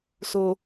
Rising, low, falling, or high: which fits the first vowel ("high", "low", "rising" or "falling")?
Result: low